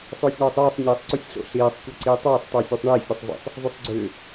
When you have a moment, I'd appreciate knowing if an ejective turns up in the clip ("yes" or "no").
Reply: no